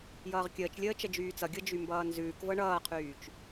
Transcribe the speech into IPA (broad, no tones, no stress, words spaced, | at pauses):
jʌːʁkʲəːt͡ʃlʲəː t͡ʃəd͡ʒyːt͡sʌɡʲɤ d͡ʒymbʌːnzʉːkvɤ ɳʌːqʰyːt͡ʃ